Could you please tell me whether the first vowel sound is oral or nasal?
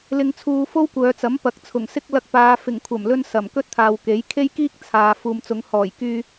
oral